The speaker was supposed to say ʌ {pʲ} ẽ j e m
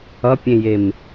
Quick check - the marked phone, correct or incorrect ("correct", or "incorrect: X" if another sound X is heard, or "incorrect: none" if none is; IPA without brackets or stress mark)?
correct